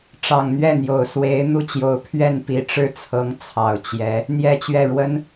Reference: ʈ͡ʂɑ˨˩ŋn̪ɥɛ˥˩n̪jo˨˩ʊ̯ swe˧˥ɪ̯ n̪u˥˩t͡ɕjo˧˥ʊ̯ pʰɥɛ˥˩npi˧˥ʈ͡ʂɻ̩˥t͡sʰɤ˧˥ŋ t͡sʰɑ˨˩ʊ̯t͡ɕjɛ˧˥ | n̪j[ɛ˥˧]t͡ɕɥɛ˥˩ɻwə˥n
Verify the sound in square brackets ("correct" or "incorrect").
correct